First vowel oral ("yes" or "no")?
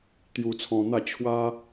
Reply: yes